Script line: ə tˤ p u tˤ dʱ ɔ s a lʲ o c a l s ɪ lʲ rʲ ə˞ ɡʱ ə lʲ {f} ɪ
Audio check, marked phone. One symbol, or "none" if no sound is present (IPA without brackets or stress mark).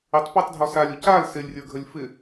f